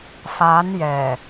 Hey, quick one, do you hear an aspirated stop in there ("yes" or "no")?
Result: no